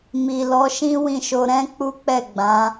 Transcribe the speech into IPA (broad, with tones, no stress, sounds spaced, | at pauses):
m i˨ l ɔ˨˦ ʃ ĩ˦ w ĩ˦˨ ʃ o˧ ɾ ɛ̃˦ k͡p u˦ k͡p ɛ˦˨ ɡ͡b ã˨˦